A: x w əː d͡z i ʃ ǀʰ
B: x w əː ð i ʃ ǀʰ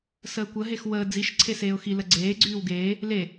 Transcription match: A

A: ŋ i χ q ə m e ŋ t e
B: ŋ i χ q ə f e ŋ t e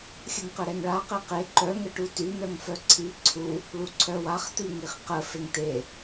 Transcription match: B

